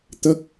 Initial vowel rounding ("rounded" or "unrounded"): unrounded